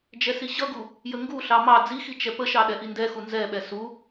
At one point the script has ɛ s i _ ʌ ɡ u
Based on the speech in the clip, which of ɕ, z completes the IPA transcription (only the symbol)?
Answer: ɕ